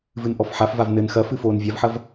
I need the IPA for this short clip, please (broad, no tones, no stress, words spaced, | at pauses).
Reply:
vɨnʔɔfħafvav nɘn xɐfɨ foːnvʲavħɐv